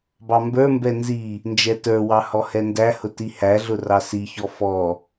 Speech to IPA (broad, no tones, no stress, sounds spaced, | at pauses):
b ɑ m b ə˞ m b ɛ n z i | n d͡ʒ ɛ t ə˞ w ɑ h ɔ h ɛ n d æ h ʊ t i h æ ɮ ʊ r ɑ s i ç ɔ f ɔ